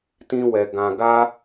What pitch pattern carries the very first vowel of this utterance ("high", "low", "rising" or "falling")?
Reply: high